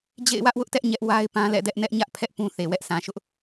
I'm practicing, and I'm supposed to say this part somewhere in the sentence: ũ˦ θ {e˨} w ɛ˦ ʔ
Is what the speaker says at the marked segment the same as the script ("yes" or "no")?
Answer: yes